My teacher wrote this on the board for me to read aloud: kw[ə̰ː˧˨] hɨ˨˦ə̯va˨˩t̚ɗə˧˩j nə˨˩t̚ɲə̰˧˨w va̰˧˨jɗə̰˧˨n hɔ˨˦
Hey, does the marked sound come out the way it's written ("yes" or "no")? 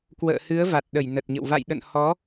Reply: yes